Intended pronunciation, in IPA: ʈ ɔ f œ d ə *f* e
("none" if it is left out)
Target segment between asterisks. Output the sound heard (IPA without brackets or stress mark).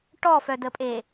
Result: pʼ